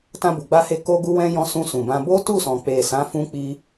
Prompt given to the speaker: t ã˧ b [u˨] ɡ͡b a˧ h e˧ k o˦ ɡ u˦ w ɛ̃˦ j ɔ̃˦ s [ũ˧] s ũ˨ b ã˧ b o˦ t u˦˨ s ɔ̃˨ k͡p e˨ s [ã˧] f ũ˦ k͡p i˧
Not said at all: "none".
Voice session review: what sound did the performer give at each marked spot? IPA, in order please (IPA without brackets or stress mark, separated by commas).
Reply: u˨, ũ˧, ã˨˦